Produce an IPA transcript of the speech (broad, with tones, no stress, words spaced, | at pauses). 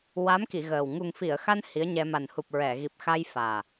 wa˧˥mki˨˩˨ ɣəː˨˩w ŋu˨˩ŋfi˨˩˨ə̯xa˧n hi˧˥ə̯ɲɛ˧ ma˨˩nhu˨˩p̚ ɹɛ˨˩˨ ɣi˨˩p̚xa˧jfaː˨˩